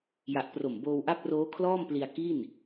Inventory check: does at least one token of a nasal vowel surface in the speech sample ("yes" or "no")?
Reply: no